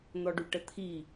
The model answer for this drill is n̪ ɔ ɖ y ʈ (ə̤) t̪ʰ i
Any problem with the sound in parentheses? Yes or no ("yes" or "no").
yes